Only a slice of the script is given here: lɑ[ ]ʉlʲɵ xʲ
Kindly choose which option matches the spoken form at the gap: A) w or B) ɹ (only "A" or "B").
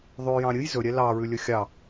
B